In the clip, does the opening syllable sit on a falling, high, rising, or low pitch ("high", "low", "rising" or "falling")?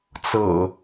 low